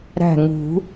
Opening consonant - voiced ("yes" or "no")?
yes